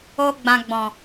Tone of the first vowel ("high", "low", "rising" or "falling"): high